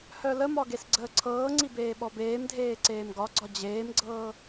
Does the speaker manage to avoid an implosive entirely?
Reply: no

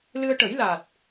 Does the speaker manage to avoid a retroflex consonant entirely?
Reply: no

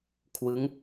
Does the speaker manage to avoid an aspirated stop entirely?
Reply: no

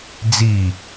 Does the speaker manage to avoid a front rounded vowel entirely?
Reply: yes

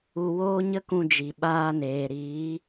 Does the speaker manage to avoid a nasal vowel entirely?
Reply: no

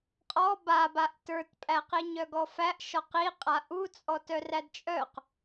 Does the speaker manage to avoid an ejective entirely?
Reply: no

